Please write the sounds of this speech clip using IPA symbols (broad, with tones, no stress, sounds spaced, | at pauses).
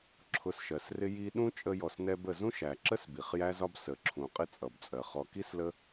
ǁʰ ʊ˨ s ʃ ɜ˩ s r ɪ˦ j i˦ ɗ ũ˥ t͡ʃʼ ə˦ j ɔ˨ s n ɛ˦ b ə˨ z ũ˥ ʃ æ˩ ǁ ə˥ s b i˩ χ j æ˦ z ɒ˦ b s ə˩ ǁʰ ũ˩ qʼ ɪ˦ t͡sʼ ʌ˩ b t͡sʼ ɜ˩ χ ɔ˨ k i˥ s l ə˦